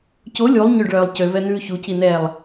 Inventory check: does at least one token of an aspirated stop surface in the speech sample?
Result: no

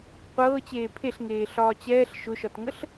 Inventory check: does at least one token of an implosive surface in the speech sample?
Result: no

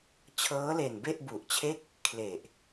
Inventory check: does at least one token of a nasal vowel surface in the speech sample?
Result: no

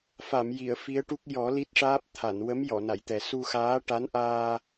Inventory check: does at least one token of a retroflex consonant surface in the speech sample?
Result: yes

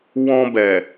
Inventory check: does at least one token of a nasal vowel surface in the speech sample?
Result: yes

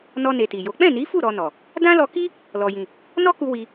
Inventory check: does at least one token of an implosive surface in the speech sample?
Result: no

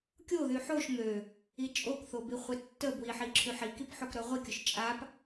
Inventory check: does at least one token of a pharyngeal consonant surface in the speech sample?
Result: yes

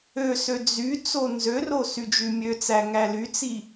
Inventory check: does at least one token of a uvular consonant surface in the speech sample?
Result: no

